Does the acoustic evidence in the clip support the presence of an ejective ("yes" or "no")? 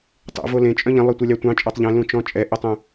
yes